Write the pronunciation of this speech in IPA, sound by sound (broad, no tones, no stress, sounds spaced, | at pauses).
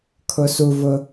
kʰ ʊ s u v ʊ